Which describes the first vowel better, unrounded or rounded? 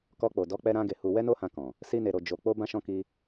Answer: rounded